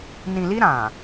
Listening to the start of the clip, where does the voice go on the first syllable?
low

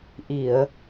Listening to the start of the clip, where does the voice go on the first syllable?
low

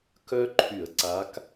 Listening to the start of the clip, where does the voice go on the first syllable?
high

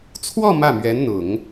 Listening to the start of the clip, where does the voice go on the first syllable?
falling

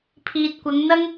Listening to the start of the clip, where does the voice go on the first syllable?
low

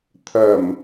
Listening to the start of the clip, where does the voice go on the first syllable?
low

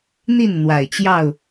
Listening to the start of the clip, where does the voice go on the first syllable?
falling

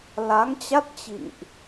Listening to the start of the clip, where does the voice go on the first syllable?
rising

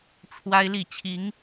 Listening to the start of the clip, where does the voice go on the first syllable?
high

